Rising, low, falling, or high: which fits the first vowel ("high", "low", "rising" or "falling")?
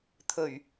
low